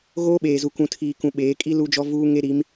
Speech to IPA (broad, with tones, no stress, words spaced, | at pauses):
ɣoː˦ɓeː˨zu˨kũ˨ tʰiː˨kũ˨ ɓeː˨˦ kʼi˦ lu˦d͡ʒɔ˦vuː˦ ŋe˦ɾi˨˦m